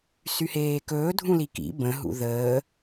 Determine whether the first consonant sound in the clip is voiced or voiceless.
voiceless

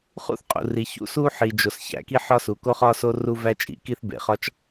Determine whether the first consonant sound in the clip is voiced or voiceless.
voiceless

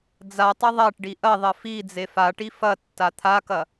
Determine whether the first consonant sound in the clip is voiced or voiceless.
voiced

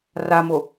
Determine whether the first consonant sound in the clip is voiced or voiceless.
voiced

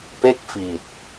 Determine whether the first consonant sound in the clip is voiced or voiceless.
voiceless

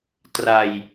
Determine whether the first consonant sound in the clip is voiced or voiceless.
voiceless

